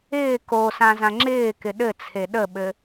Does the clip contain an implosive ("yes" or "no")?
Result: yes